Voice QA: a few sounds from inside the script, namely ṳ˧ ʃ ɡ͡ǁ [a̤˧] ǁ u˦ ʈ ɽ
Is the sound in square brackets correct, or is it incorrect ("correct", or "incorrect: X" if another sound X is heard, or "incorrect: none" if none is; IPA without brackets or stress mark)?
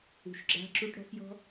incorrect: a̤˦